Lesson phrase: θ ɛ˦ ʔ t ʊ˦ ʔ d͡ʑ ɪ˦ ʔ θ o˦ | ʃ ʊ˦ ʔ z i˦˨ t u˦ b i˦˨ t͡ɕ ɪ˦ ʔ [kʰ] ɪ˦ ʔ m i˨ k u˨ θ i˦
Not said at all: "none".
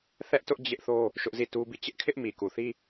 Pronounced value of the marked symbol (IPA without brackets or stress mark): kʰ